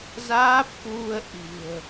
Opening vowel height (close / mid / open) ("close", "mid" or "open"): open